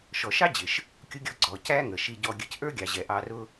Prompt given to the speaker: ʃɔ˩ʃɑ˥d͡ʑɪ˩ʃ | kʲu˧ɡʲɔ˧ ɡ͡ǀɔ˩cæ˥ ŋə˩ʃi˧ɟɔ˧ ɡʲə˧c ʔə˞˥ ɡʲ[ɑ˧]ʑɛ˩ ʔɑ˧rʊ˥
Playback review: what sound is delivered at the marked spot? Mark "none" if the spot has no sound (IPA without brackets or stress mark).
ɑ˩